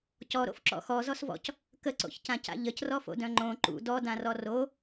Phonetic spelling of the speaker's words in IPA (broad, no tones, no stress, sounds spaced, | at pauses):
c ɔ ɾ o̰ f ǁ ɔ̰ x ɔ z ɔ s v ɔ̰ c | k ə ǀ o̰ ç c ã c a̰ ʎ ə c r ɔ f o̰ d œ̃ ŋ͡ǃ õ ǃ ṵ d ɔ d ã r ɔ r o